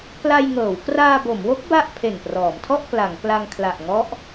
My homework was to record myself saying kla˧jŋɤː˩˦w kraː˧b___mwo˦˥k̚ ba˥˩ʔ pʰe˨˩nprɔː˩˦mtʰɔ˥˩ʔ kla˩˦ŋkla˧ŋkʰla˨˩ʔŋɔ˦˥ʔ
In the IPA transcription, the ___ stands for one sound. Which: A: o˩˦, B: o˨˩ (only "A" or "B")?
A